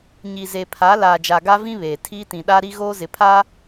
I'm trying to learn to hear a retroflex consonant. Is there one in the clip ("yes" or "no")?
no